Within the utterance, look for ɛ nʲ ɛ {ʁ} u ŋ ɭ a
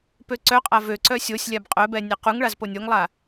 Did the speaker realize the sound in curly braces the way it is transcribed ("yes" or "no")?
no